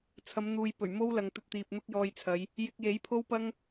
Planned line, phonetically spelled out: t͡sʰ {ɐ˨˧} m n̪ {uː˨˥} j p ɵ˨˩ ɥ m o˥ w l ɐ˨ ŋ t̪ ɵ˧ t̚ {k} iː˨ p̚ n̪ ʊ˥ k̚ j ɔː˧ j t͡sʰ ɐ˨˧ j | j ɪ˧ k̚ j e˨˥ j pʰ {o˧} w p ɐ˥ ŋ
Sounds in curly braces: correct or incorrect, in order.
correct, incorrect: uː˨, incorrect: t̪, incorrect: o˥

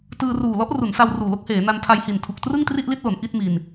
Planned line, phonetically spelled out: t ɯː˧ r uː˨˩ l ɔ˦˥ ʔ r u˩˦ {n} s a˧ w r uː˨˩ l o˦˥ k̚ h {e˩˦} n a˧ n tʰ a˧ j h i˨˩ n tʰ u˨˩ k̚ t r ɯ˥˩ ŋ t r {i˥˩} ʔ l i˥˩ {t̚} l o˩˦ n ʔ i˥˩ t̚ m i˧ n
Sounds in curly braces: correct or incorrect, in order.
correct, incorrect: eː˩˦, correct, correct

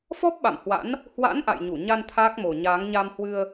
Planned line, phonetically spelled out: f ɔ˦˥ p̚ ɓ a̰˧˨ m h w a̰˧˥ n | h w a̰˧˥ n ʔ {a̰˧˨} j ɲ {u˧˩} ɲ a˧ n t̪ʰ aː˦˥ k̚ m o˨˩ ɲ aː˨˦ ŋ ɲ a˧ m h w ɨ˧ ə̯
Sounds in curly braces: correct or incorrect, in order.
correct, correct

